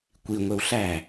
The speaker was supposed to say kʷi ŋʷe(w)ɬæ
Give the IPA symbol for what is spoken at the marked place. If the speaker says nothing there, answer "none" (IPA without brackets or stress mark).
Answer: w